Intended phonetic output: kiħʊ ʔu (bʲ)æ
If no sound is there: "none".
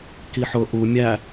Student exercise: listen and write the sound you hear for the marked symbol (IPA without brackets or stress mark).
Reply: mʲ